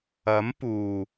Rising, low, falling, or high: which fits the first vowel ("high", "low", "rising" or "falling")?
rising